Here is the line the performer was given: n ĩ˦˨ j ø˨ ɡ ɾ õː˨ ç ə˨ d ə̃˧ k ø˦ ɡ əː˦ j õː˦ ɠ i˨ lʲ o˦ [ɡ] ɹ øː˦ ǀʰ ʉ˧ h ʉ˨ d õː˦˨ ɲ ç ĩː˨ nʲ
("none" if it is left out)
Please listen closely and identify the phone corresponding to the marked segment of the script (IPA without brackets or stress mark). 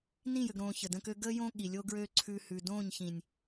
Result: ɡ